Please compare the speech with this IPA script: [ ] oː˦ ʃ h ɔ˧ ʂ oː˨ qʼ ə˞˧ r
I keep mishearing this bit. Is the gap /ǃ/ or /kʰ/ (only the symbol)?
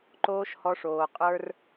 ǃ